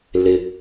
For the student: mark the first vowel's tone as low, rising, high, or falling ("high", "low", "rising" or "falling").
low